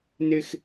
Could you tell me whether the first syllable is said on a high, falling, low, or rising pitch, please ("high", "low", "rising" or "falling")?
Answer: high